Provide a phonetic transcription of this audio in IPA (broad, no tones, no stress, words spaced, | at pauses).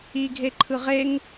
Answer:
i ɡʱeǃʰɯʁeŋ